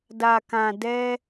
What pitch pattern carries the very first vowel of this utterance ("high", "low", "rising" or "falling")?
low